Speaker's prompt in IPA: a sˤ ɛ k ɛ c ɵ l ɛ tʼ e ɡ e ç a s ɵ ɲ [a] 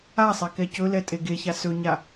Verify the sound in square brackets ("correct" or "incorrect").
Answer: correct